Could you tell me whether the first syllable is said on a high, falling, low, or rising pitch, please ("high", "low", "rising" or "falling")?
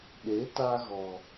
rising